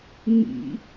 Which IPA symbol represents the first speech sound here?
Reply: ŋ͡m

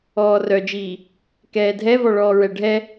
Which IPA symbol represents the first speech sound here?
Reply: ɔː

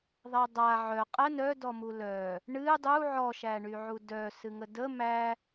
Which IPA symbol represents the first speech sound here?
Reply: ðˤ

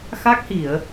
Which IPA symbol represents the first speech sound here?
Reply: x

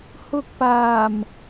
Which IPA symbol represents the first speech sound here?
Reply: h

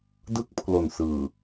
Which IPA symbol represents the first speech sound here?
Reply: d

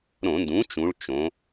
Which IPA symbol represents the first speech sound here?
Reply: ɾ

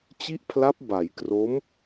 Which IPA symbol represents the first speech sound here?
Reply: t͡ɕ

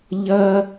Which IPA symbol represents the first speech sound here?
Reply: ʎ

